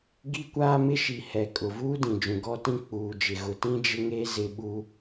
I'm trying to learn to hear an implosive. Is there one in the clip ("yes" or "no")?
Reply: yes